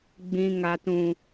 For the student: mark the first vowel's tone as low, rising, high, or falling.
high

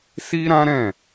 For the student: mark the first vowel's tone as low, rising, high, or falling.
high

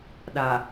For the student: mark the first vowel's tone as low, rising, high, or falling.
low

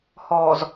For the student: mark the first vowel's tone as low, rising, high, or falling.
low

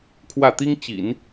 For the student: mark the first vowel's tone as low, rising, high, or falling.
falling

